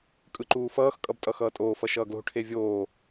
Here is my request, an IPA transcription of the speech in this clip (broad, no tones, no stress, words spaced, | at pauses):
kʼɯǃuːfʌːx kʼʌbtʼʌxʌːtʼoː fʌʃʌːɡlo̤ ʈʰevʲoː